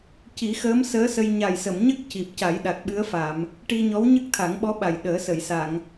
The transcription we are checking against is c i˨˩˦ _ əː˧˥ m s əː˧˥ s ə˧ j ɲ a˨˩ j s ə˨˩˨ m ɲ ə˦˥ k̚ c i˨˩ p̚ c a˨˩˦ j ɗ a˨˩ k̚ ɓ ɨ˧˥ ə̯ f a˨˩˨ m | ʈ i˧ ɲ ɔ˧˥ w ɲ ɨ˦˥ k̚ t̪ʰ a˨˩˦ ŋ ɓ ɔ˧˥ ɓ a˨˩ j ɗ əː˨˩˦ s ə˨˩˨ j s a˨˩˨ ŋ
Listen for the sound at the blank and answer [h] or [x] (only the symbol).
x